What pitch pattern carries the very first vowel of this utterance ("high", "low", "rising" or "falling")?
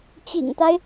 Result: low